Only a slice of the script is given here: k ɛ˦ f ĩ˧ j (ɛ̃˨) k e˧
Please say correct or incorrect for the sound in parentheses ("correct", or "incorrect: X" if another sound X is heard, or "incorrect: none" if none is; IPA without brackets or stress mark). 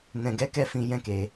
incorrect: ɛ̃˦